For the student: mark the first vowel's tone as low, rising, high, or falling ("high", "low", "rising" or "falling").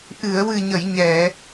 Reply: low